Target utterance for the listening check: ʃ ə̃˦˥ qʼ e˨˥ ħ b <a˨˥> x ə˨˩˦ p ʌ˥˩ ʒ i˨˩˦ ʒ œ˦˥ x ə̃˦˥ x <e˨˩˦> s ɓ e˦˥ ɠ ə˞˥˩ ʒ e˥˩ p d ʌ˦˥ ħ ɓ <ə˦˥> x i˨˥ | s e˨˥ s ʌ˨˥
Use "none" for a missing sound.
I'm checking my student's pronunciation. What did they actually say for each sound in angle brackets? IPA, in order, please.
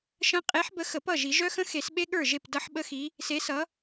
ə˨˥, e˨˩˦, ə˦˥

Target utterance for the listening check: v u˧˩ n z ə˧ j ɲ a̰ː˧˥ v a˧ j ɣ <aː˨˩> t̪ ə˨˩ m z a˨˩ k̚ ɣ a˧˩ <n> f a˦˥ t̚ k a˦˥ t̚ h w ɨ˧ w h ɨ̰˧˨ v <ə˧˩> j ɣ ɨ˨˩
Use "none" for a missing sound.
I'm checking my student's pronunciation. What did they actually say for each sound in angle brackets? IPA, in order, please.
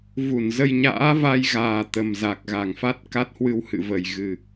aː˨˩, ŋ, ə˧˩

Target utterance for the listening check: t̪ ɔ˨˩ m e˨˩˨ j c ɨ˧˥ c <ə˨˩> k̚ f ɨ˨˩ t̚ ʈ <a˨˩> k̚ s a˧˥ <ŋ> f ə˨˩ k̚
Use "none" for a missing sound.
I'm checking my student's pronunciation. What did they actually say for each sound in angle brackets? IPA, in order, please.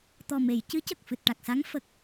ə˨˩, a˨˩, ŋ

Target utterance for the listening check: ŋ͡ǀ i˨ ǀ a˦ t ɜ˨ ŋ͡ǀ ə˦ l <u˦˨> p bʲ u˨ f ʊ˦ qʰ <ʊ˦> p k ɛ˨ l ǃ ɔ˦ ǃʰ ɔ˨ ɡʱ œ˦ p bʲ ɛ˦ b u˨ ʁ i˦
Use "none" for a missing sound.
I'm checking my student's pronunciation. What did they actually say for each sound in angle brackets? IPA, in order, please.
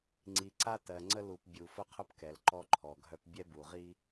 u˨, ʊ˦

